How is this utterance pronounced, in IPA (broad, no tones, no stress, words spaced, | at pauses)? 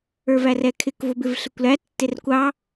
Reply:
ə˞værɛkʰɪk vʊbɪvɬɪkʷlæ tːɪrkʷɑ